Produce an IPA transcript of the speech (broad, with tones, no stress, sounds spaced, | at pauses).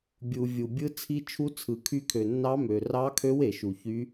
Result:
bʲ u˩ vʲ u˩ bʲ ɯ˧˥ t͡sʰ i˧˥ t͡ʃʰ u˧˥ t͡sʰ ɯ˩ kʰ y˧˥ kʰ ø˩ nː ɑ˧˥ m ø˩ r ɑ˧˥ kʰ ø˧˥ w e˩ ʃ u˩ ç y˧˥